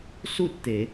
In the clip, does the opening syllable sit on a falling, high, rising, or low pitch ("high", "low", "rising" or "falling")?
falling